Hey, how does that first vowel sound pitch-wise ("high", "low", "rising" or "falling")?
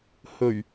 low